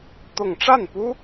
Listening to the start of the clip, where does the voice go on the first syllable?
falling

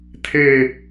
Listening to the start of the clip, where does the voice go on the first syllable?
falling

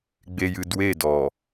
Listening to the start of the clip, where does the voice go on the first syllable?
low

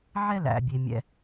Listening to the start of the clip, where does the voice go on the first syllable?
high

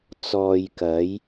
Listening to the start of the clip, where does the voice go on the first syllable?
low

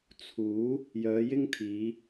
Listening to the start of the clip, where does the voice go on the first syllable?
rising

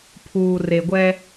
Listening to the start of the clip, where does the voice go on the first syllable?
low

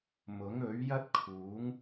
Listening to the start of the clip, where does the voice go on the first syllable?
rising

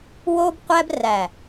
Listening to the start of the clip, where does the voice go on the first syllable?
high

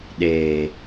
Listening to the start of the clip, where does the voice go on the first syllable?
low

